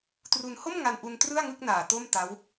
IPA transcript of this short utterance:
t r u˧ n h o˥˩ m ŋ a˧ n ʔ u˧ n t r ɯ˥˩ a̯ ŋ ɯ˥˩ k̚ n aː˨˩ t o˥˩ m t a˦˥ w

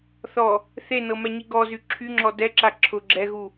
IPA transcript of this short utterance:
θ ɔ | θ e n ɤ m ɛ ɲ i ɡ ɔ z y ǁʰ y ŋ͡ǁ ɔ d ɛ ǁ a ǁʰ ʊ ɡ͡ǁ ɛ ɣ u

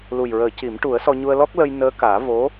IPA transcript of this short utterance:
l u˨˩ j ɹ əː˨˩˦ c i˨˩˦ m ʈ u˨˩˦ ə̯ s ɔ˧ ɲ u˧ ə̯ l ɔ˦˥ k̚ l ə˧ j n əː˧˥ k aː˨˩˦ v o˧˥

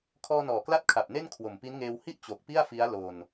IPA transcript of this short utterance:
kʰ ɔː˧ n ɔː˨˩ k l a˦˥ t̚ kʰ a˨˩ p̚ n e˥˩ n kʰ w o˨˩ m p i˦˥ n ŋ eː˧ w h i˥˩ ʔ t͡ɕ o˨˩ k̚ p i˥˩ a̯ f i˦˥ a̯ l oː˧ n

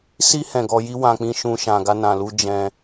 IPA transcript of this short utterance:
s i˧ h ɛ̃˨ ɡ ɔ˧ j i˦ w ã˧ k͡p ĩ˦ ʃ ũ˦ ʃ ã˧ ɡ a˧ n ã˨ l u˧ d͡ʒ ɛ̃˧

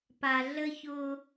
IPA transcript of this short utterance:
p a˨ ɮ ə˦ ç ʊ˦

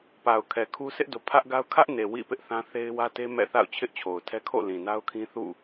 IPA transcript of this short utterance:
p a˨ ʊ̯ kʰ ɛ˨ kʰ u˦ s ɪ˦ ʔ d o˨ pʰ ä˦ ʔ ɡ a˦ ʊ̯ kʰ ä˦ ʔ n e˨ w ḭ˦˨ p ɪ˦ ʔ θ ã˦ θ e˦ ɪ̯ w ä˦ t e˦ m ɛ̰˦˨ θ a̰˦˨ ʊ̯ t͡ɕʰ ɪ˦ ʔ t͡ɕʰ o˨ ʊ̯ tʰ ɛ˦ kʰ o̰˦˨ l ĩ˨ n a˦ ʊ̯ kʰ ĩ˦ θ ṵ˦˨

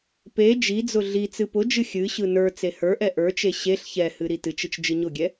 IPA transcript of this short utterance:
p e d͡ʒ i d͡z ʊ ɮ i t͡s ɨ p ʊ d͡ʒ ɨ xʲ ɨ ɕ ɯ n ə˞ t͡s e h ə˞ ʔ ɛ ʔ ə˞ t͡ʃ e ɕ e ɬ ç ɛ h ɨ ɾ i t ɨ t͡ʃ ɨ t͡ʃ d͡ʒ ɨ ɲ ʊ ɡʲ ɛ

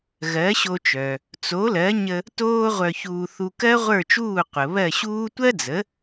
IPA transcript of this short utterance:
ɣ ɜ˩˥ ɕ o˧ t͡ʃ œ˩ | t͡s o˩˥ l ɜ˩˥ ɲ ə˧ | t oː˥ ʁʷ œ˧ ç uː˧ θ u˧ k ɜ˥ ʁʷ ə˞˥˩ t͡ʃ uː˥˩ qʷ ə˩ β ɜ˥˩ ɕ uː˥ tʷ ɜ˥ d͡z ə˩˥

